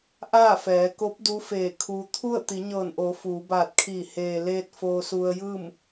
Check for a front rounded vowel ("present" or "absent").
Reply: absent